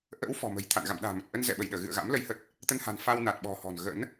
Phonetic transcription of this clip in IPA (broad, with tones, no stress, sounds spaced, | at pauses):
ʔ ə̰ː˧˥ w f ɔ̤˨˩ m ə̤˨˩ j t̪ʰ a̰˧˨ n ɣ a̰˧˨ m ɗ a̤ː˨˩ m ə˨˩ t̚ ʔ ə˧ n z ɛ̰˧˨ ɓ ə˧˩ j ɗ əː˧˩ ɣ ɨ̰˧˨ ə̯ ɣ a̰˧˥ m l ə˨˦ j h ə˨˩ t̚ | t̪ ə˧ n h a̤˨˩ n f a˧ w n a˨˩ t̚ ɓ ɔ̤˨˩ h ɔ̤˨˩ n ɣ ə̰˧˥ n